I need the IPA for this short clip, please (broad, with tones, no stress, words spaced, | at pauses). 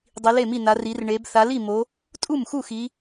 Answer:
dˤi˩˧le˥˩mi˥˩na˩˧ ri˩˧rɳe˩˧b θa˩˧li˥˩mo˩˧ | tʼu˥˩mxu˥˩xi˩˧